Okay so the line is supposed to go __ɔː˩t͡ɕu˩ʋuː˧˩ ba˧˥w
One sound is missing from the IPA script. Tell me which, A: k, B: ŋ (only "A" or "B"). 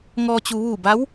B